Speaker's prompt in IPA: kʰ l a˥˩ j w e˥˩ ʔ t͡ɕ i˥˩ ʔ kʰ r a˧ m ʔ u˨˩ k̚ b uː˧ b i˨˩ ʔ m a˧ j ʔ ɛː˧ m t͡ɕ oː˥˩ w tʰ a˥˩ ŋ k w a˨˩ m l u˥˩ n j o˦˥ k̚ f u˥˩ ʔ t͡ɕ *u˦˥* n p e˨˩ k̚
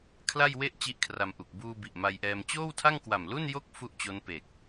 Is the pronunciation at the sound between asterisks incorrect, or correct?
incorrect